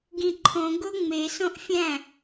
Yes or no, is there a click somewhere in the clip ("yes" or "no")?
yes